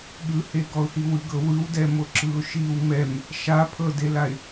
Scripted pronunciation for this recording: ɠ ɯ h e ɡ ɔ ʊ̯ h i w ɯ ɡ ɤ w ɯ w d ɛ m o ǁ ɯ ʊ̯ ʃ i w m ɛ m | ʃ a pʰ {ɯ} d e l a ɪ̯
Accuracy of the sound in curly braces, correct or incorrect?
incorrect